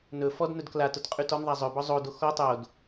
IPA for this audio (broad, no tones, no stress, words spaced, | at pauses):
nɵ fɔdnɵd klatʊtqʼy tɔnðˤa zˤɵbɔ zˤodo xɔ tˤod